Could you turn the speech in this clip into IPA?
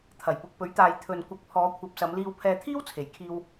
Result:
t̪ʰ ɐ˨˩ j p ʊ˨ k̚ p ɵ˨˥ ɥ t̪ aː˨ j t̪ʰ ɵ˨ n kʷ ɐ˨˥ k̚ pʰ ɔː˨˧ kʷʰ ɐ˨˥ p̚ s ɐ˨˧ m l iː˧ w pʰ ɛː˧ t̪ʰ iː˥ w t͡sʰ e˨˩ j kʰ iː˧ w

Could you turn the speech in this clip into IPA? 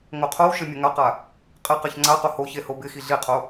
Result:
ŋ o qʰ o w ʃ ɪ mʲ ə ŋ a q a | qʼ ɪ q e ç ŋ͡ǀ a q o h o ç e h o b ɪ x i ɮ i qʰ o

